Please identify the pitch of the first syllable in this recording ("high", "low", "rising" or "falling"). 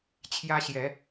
high